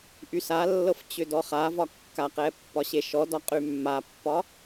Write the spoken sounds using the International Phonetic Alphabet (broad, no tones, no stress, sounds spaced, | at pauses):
ʔ y s a lː ɤ f t͡ɕ ʏ d ɔ χ a v ɒ kː a q ɛ pː ɒ ɕ e ʃ ɔ d ɒ qʼ y mː a pː ɒ